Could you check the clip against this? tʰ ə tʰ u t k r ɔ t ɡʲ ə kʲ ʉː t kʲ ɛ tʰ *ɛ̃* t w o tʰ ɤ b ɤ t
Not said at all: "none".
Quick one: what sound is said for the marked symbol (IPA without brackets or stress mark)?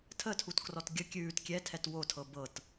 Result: ɛ